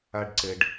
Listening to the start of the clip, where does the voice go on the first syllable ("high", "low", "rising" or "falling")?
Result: high